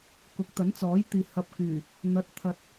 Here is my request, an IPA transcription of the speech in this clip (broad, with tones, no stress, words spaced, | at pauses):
kʊ˨˥k̚t̪ɐ˨˥nt͡sɔː˨˥jt̪iː˨ hɐ˧p̚kyː˨˩ | n̪ɐ˨˥t̚ t̪ʰɐ˨t̚